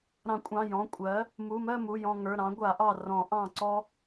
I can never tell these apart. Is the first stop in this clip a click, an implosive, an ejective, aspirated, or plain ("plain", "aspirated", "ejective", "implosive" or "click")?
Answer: ejective